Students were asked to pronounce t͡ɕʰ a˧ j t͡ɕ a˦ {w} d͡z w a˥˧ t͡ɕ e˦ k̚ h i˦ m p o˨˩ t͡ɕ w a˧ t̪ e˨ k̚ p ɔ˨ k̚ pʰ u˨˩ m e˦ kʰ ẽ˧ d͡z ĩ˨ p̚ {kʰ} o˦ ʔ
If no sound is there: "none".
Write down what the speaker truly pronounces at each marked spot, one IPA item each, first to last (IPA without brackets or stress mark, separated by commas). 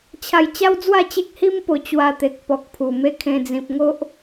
w, ŋ